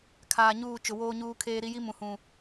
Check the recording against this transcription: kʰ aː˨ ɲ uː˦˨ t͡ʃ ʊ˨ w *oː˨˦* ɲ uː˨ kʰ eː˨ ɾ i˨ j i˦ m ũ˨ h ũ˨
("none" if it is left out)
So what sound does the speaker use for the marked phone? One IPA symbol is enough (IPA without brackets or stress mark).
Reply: oː˨